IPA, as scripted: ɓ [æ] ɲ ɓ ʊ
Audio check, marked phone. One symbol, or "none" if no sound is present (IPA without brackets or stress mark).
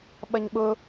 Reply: ɐ